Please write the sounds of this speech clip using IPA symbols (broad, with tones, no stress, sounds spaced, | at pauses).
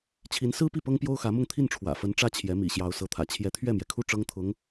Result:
t͡ɕʰ i˧˥ n s ɹ̩˥ p i˥˩ p ɤ˥ ŋ p j o˥ ʊ̯ x ä˧˥ m ʊ˥˧ ŋ t̪ʰ i˥˩ n ʈ͡ʂʰ w ä̰˨˩ f ə˧˥ n ʈ͡ʂ ä˥˩ t͡ɕʰ j ɛ˧˥ m ḭ˨˩ ɕ j ɑ˧˥ ʊ̯ s ɤ˧˥ t̪ʰ ä̰˨˩ t͡ɕʰ j ɛ˧˥ t̪ʰ ɥ ɛ˥˩ m j ɛ˩ kʰ u˥˩ ʈ͡ʂ ɤ˥ ŋ t̪ʰ ʊ˧˥ ŋ